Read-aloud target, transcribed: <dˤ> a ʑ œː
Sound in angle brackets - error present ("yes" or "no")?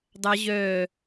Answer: no